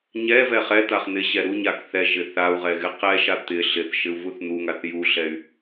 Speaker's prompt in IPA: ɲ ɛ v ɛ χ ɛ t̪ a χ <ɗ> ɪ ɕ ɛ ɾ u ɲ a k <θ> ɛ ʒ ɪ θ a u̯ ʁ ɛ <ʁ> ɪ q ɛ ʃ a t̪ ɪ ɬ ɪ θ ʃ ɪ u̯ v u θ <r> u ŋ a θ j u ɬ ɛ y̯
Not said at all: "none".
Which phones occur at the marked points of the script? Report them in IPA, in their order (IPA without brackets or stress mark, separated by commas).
n̪, θ, ɣ, n̪